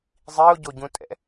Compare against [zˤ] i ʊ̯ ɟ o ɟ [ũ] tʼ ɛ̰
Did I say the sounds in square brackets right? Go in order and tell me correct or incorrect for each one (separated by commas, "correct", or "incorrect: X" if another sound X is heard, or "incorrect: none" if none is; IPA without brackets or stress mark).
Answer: correct, correct